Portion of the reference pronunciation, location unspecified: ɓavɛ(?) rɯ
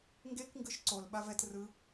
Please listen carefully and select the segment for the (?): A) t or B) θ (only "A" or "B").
A